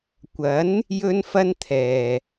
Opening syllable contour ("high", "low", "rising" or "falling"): rising